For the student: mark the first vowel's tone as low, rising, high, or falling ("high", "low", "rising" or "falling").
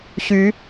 rising